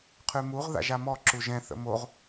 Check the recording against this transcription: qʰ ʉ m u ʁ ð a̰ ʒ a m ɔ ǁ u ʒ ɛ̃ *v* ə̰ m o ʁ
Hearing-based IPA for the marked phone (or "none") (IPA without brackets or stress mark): θ